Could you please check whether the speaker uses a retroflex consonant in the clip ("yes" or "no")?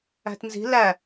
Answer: no